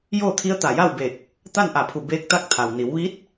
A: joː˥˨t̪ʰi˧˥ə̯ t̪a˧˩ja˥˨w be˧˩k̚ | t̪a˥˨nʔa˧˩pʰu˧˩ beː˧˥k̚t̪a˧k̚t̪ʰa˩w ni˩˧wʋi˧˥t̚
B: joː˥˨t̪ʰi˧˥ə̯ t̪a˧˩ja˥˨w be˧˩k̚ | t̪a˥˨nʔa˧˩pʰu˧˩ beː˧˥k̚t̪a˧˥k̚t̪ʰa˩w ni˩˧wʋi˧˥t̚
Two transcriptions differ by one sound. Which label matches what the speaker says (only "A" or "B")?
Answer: B